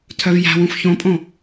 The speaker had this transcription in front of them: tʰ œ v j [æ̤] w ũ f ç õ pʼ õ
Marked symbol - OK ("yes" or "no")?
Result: yes